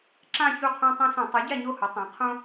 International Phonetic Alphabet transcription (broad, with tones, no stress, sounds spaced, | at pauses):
ǁ ã˥˧ ç u˥˧ qʰ õ˥ tˤ õ˥ s õ˧˩˧ tˤ u˩˥ ɟ a˥˧ ɲ o˥˧ h ʊ˩˥ tˤ ã˩˥ qʰ õ˥